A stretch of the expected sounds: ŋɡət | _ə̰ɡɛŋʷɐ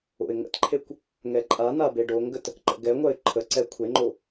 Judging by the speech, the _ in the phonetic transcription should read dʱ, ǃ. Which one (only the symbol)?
ǃ